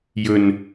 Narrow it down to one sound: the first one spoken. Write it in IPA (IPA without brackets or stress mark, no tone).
j